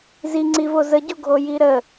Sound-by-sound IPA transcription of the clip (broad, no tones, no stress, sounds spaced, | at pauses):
z i ŋ͡ǀ i v o z ə ɟ o ɡʱ o j i ɾ ə